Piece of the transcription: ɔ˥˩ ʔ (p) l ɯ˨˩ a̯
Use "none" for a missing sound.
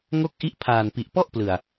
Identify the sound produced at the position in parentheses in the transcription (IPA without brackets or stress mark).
p